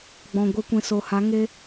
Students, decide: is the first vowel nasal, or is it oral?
nasal